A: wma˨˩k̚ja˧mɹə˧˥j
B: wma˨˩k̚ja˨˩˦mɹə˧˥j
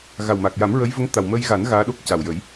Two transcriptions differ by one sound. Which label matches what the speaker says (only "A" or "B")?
B